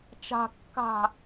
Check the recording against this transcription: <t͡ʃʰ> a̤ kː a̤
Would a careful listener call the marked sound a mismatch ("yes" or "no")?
yes